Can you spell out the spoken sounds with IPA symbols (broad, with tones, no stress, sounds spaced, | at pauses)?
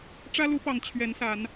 ʈ͡ʂ ä˦ l u˨˦ p ɑ˨˩ ŋ t͡ɕʰ ɥ ɛ˨˦ n s a˨˦ n